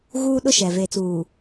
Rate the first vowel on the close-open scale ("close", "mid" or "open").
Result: close